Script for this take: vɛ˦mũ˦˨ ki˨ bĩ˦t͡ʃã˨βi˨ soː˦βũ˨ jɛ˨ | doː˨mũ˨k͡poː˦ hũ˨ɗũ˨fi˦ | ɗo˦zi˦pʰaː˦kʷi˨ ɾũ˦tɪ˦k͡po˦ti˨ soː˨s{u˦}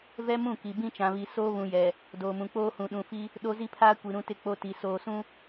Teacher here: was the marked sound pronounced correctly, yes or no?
no